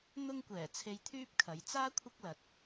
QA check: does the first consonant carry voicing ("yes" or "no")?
yes